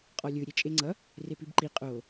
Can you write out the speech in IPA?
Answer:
qʼ ɔ lʲ ɯ ɾʲ e t͡ʃʼ e ŋ͡ǀ ʌ | r e p i b ǃ i qʼ o

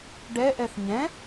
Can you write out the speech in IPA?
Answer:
ɖ ɛ ʔ ɛ θ ɲ ɛ̃

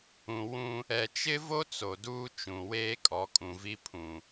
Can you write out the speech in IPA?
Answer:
ũ˨ w ũ˦ | ɛ˨ t͡ʃ ɪ˦ v o˦ t͡s o˨ d uː˦ t͡ʃ ũ˨ w eː˦ kʼ ɔ˨˦ kʼ ũ˨ v i˦ pʰ ũ˨

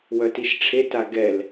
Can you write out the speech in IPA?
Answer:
w œ t i ʃ ʈ͡ʂʰ e t a ɡ ɛ l

